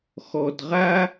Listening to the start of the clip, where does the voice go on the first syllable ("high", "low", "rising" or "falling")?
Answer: low